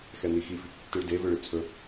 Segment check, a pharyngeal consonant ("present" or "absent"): absent